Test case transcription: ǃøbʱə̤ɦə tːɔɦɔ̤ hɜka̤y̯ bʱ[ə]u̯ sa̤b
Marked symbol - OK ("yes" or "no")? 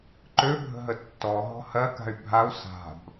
no